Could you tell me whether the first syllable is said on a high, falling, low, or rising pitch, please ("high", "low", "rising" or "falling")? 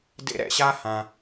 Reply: high